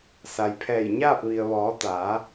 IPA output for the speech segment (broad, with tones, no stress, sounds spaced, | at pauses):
s a˩ j pʰ ɛː˧˩ j ɲ aː˥˨ p̚ ʋ i˩ ə̯ ʋ ɔː˩˧ t̪ aː˩˧